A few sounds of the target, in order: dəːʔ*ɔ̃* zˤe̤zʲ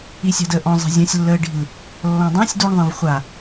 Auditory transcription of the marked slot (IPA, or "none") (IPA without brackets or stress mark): ɔ̃